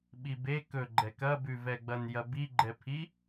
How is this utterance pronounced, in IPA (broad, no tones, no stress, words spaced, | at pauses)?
ɓibe kɵɡ͡ǃɛk ɐbʉvɛɡ͡bɐn jɐbiɡ͡ǃɛpʰi